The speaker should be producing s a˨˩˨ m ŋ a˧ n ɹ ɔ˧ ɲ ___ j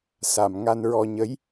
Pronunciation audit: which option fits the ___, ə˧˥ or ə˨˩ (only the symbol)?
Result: ə˧˥